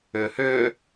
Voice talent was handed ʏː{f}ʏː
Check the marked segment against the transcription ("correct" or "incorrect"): incorrect